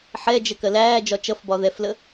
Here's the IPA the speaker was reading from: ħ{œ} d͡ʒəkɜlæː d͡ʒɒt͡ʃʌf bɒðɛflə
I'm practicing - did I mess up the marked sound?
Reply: yes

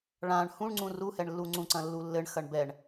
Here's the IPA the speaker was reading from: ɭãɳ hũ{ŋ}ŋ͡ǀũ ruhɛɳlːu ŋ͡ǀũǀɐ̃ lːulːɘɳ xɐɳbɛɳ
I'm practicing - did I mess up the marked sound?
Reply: yes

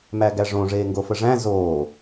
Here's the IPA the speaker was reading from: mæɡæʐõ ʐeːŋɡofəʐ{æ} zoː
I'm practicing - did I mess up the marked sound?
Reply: yes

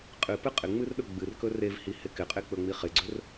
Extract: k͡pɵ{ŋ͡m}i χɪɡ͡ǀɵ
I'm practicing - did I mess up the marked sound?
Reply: no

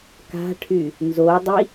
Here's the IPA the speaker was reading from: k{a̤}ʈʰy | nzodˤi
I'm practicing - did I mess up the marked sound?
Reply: no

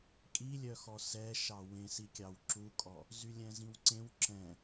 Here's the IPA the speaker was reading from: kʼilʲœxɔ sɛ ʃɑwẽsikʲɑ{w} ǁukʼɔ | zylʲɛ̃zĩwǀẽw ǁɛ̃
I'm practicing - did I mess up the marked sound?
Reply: no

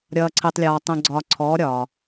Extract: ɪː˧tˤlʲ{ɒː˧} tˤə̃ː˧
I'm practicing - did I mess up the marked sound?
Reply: no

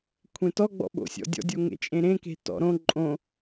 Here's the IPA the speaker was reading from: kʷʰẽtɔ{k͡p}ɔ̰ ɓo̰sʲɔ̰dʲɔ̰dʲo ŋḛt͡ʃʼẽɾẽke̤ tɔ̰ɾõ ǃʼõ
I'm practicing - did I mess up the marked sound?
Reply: yes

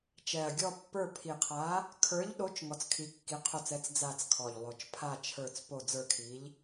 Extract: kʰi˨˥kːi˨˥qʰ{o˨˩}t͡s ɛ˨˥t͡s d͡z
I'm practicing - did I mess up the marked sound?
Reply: yes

